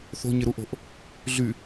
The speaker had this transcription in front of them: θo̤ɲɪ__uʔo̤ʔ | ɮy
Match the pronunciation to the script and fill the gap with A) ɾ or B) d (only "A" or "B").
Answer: A